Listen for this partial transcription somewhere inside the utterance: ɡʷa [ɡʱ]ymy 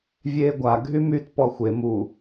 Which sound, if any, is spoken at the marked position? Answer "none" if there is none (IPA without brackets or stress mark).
ɡʱ